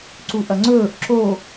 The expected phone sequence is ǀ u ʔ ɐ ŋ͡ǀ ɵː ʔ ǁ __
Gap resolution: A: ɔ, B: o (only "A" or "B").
B